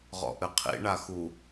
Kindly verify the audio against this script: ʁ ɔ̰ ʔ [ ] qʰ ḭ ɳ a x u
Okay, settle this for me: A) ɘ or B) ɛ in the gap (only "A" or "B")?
A